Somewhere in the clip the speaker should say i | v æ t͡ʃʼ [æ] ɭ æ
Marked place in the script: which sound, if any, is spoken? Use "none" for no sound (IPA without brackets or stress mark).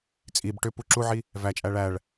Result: æ